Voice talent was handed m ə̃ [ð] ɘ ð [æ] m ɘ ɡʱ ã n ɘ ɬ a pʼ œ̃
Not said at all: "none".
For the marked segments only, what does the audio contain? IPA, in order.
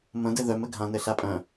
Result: d, œ

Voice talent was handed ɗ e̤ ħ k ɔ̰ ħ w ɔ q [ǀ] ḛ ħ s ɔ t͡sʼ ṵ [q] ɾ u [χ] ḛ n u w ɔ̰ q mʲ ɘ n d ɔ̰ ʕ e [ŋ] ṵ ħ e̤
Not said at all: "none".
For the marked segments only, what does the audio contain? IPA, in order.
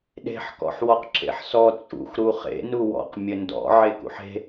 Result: ǁ, x, χ, k

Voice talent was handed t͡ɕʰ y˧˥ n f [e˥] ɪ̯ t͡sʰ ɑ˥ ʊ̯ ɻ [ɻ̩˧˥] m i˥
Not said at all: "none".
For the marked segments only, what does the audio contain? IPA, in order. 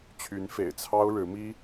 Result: ḛ˨˩, ɻ̩˧˥

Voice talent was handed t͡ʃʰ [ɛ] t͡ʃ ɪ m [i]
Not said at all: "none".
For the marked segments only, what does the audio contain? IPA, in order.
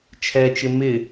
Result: ɛ, ɪ

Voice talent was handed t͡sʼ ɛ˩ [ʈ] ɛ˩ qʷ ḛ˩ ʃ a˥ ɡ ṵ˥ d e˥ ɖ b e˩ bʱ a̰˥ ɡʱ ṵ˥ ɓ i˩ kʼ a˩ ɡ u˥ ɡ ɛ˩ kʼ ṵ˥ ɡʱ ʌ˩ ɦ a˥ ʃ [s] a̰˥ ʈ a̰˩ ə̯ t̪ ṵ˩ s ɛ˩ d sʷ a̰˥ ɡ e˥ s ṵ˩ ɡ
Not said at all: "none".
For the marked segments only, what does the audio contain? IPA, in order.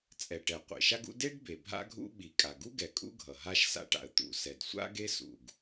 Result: ʈ, s

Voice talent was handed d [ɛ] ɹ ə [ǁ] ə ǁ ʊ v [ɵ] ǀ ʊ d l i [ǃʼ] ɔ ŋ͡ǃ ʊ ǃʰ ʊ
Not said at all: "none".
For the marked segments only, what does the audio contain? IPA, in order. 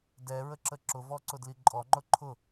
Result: ɛ, ǁ, ɔ, ǃʼ

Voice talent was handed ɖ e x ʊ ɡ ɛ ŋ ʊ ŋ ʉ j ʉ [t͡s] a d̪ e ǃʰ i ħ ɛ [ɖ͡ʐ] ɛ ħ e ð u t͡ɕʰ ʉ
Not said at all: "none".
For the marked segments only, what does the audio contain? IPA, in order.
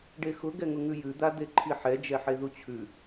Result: d̪, d͡ʒ

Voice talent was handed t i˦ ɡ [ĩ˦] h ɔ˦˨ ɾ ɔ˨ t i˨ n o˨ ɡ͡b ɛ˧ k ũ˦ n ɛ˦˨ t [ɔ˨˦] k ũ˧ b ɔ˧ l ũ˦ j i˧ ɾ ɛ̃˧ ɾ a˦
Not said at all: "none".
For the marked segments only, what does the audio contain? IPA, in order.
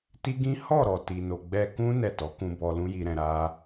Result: ĩ˦, ɔ˨˦

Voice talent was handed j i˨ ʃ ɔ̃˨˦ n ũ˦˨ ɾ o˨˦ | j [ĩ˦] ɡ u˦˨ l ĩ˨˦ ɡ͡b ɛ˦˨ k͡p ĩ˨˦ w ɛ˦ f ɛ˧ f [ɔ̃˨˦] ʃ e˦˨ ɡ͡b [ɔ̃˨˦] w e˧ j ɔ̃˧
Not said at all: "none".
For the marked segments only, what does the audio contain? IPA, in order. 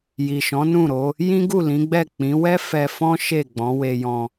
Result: ĩ˦, ɔ̃˦, ɔ̃˨˦

